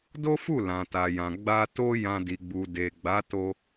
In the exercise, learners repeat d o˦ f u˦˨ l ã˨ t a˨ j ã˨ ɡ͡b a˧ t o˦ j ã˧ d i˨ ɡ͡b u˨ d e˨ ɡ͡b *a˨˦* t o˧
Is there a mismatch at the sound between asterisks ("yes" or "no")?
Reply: no